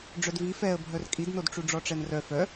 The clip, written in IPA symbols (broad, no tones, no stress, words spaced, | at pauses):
ɖ͡ʐœdvi fɛə̯ bʱœrkʼidnod ʈ͡ʂuɖ͡ʐɔʈ͡ʂɛnrœ fœ